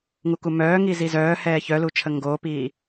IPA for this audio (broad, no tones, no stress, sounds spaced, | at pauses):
ŋ u k u m œː ŋ i z i z œː h ɛː ç œ l u t͡ʃʰ ə ŋ ɡ o p iː